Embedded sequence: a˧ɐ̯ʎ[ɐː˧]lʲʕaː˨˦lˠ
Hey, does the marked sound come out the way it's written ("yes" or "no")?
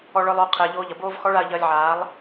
yes